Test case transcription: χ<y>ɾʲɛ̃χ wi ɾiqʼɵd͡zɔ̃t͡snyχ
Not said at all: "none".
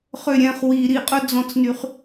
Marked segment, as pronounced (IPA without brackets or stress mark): ø